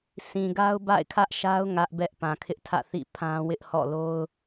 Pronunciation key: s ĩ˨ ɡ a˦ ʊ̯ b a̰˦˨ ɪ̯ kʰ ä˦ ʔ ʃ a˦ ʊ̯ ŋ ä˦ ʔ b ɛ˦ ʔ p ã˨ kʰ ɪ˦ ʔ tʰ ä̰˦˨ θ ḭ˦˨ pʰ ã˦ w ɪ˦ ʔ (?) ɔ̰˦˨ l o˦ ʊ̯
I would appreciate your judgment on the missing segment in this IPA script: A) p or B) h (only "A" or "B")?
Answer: B